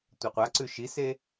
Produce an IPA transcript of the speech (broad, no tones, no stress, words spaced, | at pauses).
tʷaqʷaǀʉ ʃise